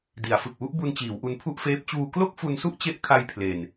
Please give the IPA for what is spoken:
di˩˦a̯ fɯ˨˩k̚wu˥˩ʔbu˧n t͡ɕiː˩˦wʔu˧npʰu˥˩ʔfeː˦˥p̚ t͡ɕuː˧klo˥˩k̚fu˧nsu˥˩ʔ t͡ɕe˦˥ʔkʰa˧j pʰle˨˩n

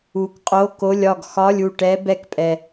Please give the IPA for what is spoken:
u˨kqʼo˧˥˧ko˧˥˧lʲ ɒ˥˩ɡxɒ˧˥˧lʲu˥˩ ʈɛ˧˥ bɛ˧˥kpʼɛ˨

